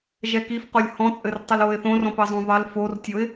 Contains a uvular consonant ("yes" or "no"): yes